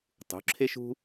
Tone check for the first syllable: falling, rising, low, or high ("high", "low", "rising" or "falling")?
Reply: rising